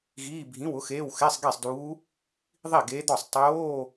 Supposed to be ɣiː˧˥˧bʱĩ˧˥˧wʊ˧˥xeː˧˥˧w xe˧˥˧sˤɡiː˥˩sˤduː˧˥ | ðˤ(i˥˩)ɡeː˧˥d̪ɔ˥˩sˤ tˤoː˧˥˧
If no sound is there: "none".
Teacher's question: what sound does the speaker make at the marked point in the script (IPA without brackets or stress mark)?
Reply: i˥˩